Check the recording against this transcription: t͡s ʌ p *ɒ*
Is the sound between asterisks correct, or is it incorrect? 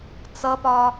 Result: correct